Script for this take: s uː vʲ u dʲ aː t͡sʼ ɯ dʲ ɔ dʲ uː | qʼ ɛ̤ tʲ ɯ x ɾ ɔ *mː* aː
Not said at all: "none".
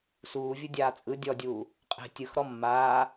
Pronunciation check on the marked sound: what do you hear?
mː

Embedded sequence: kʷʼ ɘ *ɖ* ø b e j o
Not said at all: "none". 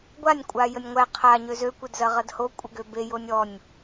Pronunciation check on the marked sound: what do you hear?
ɡ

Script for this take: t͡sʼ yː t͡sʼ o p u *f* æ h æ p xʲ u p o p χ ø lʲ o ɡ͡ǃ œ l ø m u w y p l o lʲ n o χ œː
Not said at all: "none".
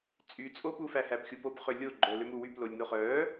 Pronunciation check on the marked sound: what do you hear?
f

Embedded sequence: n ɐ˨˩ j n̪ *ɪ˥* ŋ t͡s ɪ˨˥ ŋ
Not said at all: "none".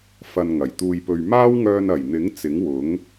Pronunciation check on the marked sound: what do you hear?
ɪ˨˥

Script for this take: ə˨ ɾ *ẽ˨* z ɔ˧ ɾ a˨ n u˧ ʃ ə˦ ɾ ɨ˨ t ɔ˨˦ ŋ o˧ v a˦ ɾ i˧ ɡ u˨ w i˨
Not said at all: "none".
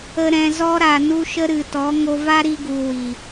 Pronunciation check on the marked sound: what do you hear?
ɛ̃˨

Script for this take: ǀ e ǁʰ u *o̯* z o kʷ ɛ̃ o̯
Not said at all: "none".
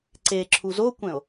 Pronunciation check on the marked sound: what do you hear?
none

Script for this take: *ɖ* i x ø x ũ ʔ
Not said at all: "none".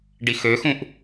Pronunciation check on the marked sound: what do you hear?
ɖ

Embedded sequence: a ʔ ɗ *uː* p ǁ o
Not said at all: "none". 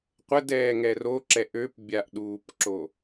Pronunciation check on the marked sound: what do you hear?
uː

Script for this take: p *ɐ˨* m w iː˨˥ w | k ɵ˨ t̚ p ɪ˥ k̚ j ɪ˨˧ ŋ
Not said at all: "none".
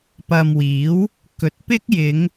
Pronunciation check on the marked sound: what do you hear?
ɐ˨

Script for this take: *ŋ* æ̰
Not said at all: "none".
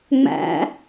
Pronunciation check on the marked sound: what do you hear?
ŋ͡m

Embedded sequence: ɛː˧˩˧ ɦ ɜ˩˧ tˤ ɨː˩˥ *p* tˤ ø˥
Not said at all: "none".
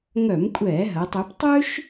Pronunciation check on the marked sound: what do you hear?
p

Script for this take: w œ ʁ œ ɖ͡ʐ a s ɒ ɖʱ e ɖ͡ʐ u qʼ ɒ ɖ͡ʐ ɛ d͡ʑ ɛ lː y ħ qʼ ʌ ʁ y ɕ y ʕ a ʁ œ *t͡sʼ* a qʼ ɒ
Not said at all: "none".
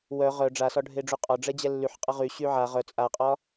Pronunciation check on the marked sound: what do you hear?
t͡sʼ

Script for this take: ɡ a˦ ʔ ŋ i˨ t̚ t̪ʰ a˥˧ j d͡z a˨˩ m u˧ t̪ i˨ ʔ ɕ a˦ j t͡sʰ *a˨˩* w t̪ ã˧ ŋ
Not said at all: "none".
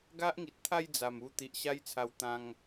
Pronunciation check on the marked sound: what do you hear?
a˧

